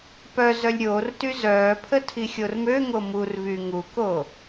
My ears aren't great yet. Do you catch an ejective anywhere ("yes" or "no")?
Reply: no